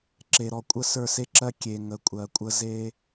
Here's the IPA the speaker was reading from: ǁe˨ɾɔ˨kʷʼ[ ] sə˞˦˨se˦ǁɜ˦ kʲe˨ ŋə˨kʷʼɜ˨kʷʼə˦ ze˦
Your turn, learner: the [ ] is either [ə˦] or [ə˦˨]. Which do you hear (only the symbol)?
ə˦˨